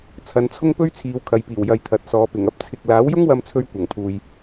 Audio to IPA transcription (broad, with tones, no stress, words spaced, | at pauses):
t͡sʰɐ˨˧nt͡sʰʊ˥ŋpɵ˥ɥ t͡sʰiː˨˧wkʰɐ˨jpiː˨˩w jɐ˨jt̪ʰɐ˨t̚sɔː˨˧pɪ˨˩ŋ ɐ˥p̚t͡sʰɪ˨k̚ laː˨˥wjʊ˥ŋwɐ˧mt͡sʰɵ˧ɥ kʷɐ˨˩ŋt̪ʰuː˨j